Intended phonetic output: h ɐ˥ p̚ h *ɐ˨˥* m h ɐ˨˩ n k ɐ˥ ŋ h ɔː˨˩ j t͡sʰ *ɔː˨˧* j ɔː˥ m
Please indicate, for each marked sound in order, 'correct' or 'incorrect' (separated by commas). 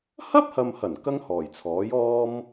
incorrect, incorrect